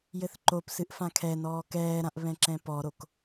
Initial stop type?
click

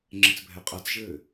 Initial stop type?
click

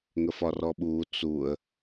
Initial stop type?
implosive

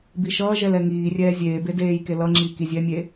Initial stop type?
plain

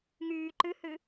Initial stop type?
click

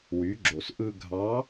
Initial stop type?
click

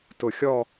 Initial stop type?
plain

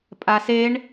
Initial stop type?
ejective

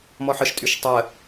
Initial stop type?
ejective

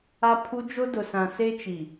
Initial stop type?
aspirated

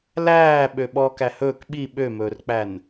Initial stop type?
implosive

